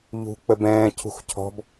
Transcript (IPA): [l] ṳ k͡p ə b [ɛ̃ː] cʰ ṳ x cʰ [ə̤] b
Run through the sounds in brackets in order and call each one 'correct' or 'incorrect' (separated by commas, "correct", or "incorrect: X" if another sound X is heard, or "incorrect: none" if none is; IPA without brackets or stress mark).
incorrect: ʎ, correct, incorrect: ɔ̤